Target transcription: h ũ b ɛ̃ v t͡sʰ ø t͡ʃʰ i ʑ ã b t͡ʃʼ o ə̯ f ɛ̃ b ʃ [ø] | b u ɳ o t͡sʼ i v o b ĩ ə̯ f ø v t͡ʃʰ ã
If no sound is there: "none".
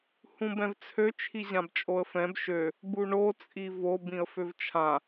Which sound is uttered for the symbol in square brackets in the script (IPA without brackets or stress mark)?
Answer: ø